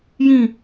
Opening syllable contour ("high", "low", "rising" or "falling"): falling